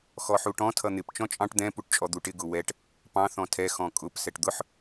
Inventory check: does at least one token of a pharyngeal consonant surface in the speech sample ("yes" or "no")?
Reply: yes